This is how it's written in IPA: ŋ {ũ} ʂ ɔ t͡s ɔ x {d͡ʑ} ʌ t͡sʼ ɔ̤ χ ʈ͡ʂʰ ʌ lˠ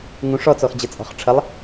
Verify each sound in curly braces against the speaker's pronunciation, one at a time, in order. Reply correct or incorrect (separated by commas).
correct, correct